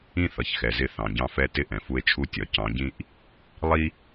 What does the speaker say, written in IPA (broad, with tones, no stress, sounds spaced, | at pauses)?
ĩ˦ θ ʌ˨ ç x ɛ˨ z ɪ˧ θ ɑ̃˨ ɟ ɑ̃˧ f ɛ˧ t ɪ˦˨ ʔ ɛ̃˨ f u˧ e̯ t͡ʃʰ u˧ tʲ ɒ˨ c ɑ̃˨˦ ɟ ĩ˦ ʔ | lˠ i˦